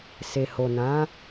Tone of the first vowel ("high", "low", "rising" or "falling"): low